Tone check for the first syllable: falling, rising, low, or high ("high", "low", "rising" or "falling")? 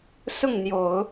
falling